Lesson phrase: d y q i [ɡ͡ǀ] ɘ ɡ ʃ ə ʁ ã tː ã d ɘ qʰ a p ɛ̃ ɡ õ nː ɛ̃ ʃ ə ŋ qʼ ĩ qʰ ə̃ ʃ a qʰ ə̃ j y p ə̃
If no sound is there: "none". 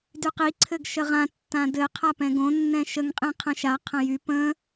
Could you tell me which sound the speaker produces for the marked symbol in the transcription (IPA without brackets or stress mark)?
ǀʰ